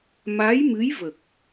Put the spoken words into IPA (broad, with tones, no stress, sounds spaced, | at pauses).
m a˧˥ j m ɨ˧˥ j v ə˨˩ k̚